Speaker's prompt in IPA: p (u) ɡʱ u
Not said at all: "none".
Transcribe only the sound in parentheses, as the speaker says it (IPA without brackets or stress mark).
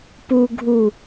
u